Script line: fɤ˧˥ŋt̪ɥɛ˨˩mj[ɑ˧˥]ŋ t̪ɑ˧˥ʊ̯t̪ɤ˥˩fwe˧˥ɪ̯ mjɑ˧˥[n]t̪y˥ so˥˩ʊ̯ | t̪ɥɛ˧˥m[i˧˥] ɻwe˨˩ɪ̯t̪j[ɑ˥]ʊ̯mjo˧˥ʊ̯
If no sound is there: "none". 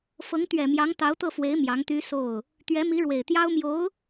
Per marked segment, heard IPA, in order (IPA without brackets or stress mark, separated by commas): ɑ˧˥, ŋ, i˧˥, ɑ˥